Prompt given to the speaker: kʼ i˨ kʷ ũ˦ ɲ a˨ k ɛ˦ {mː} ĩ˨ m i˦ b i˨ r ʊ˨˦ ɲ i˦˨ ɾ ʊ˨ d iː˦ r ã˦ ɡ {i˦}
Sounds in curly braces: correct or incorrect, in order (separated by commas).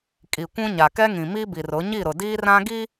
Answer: incorrect, correct